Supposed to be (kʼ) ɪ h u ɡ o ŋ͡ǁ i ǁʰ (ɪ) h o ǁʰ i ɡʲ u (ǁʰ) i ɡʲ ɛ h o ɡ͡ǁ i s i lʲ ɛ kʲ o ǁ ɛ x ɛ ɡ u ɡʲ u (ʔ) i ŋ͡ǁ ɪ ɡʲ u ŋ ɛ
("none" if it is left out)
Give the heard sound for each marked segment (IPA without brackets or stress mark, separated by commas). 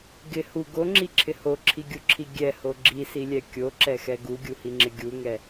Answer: ɡ, ɪ, ǁʰ, h